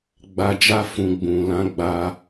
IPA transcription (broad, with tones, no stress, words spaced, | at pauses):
ɡ͡ba˧d͡ʒa˦ fũ˧ ɡ͡bũ˨ lã˨˦ɡ͡ba˧